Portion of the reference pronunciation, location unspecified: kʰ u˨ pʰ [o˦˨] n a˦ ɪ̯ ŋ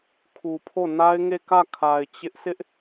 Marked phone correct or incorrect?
correct